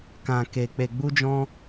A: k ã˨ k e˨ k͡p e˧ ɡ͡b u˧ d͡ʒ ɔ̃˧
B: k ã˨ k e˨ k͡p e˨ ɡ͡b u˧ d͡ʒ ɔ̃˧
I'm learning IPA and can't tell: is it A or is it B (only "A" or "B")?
B